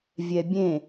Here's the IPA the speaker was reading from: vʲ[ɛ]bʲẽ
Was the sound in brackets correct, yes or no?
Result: yes